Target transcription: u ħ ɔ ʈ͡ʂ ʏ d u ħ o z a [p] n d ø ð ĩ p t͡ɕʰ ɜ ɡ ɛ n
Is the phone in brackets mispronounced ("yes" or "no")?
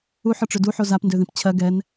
no